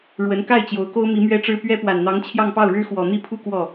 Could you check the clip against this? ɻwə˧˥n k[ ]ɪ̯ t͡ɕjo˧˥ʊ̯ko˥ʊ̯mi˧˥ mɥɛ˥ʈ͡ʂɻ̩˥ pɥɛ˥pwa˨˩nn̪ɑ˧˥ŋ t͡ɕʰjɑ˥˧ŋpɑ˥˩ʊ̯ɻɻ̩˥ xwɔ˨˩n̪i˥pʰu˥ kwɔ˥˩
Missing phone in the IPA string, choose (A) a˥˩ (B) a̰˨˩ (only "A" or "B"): A